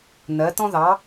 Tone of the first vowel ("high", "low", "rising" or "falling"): rising